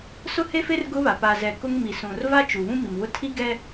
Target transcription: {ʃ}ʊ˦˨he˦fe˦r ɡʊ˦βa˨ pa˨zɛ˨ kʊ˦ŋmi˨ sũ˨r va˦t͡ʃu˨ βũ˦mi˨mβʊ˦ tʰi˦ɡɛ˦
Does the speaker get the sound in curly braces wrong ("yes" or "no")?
yes